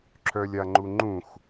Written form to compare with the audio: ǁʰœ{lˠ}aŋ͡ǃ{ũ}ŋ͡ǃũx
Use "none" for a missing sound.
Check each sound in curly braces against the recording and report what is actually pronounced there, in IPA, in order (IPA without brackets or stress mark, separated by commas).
lʲ, u